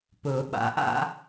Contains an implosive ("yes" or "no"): yes